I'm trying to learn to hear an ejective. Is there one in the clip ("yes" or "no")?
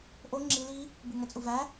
yes